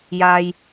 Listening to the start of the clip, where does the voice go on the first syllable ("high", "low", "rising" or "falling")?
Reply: low